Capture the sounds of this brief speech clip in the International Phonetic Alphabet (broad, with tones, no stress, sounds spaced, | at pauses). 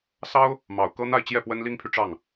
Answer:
s ɑ˥ ʊ̯ | m ɑ˨˩ ʊ̯ k ɤ˥ n̪ a˥˧ ɪ̯ t͡ɕ j ɛ˥˩ p w ə˥ n l i˥ ŋ pʰ y˨ ʈ͡ʂ ɑ˥˩ ŋ